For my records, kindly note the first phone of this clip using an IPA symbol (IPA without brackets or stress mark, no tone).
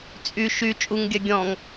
t͡sʼ